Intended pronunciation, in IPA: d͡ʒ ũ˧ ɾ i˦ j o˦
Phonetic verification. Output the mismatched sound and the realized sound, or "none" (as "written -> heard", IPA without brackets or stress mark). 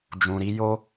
none